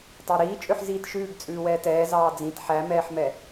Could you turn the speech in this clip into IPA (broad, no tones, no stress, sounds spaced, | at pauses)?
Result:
tˤ ɑ ɾ iː t͡ʃʼ ø ħ z iː t ʃ ʉː ɡ t͡sʼ ʉː w ɛː t ɛː z ɑː d͡z ĩ t ħ æ m ɛː ħ m ɛ